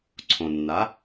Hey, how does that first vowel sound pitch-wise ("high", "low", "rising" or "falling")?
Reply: low